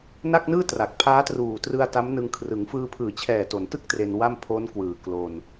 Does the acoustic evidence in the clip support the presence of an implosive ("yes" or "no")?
no